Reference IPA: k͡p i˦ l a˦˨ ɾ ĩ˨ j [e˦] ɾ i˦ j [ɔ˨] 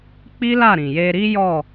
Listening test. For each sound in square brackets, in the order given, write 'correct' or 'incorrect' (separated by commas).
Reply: incorrect, incorrect